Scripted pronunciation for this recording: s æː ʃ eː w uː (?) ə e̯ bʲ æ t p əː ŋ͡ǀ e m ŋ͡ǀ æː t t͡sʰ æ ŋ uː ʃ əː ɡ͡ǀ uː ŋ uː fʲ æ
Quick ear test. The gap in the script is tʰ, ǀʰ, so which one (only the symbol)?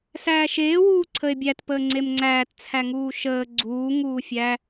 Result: ǀʰ